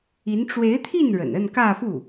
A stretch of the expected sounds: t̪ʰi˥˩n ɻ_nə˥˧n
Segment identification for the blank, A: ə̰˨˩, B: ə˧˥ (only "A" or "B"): A